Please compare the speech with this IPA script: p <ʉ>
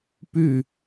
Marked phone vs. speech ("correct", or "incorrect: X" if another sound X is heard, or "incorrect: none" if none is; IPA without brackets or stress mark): correct